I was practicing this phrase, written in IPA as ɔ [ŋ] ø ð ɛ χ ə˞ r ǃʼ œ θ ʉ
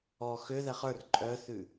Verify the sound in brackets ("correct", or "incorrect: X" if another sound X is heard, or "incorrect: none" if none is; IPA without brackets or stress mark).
incorrect: x